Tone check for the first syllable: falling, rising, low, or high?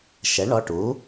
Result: rising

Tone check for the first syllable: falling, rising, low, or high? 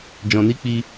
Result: low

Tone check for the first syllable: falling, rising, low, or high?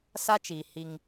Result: high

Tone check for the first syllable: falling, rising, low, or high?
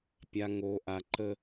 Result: low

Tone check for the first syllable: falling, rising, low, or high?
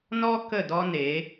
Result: high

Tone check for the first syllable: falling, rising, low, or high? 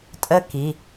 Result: falling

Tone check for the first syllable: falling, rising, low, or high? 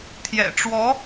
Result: low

